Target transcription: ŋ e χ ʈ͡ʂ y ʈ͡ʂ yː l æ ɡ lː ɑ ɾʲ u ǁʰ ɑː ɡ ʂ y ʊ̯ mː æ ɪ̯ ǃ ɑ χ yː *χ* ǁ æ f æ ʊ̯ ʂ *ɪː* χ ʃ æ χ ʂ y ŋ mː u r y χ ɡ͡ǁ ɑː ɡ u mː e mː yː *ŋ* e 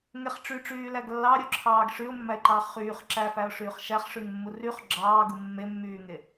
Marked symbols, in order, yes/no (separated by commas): yes, no, yes